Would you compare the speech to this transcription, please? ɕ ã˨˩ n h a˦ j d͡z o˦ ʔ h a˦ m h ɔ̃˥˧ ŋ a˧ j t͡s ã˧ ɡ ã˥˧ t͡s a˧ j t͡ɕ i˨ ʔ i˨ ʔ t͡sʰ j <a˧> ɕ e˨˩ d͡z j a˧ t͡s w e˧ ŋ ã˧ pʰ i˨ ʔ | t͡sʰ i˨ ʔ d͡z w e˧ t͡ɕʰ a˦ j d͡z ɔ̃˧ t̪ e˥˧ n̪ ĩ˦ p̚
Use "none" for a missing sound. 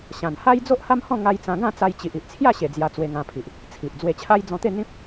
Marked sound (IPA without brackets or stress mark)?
a˥˧